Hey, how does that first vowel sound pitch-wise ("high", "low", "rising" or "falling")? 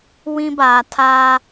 high